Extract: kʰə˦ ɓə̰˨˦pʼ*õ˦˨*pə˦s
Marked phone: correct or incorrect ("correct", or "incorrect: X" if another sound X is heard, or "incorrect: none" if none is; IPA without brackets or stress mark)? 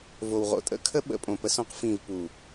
incorrect: õ˨